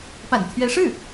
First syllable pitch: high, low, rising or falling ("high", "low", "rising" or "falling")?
low